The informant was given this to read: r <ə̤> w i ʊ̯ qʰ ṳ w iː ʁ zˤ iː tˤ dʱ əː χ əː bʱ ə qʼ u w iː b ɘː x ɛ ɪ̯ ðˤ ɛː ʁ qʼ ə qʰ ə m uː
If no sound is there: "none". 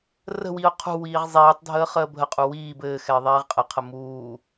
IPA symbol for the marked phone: ə̤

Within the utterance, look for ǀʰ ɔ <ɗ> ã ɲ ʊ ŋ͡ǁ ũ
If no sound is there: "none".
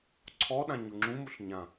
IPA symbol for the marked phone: ɗ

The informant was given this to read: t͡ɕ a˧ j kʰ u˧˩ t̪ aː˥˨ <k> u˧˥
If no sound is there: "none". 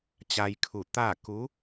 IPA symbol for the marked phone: k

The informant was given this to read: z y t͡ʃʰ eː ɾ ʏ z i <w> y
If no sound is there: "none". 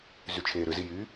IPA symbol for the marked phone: j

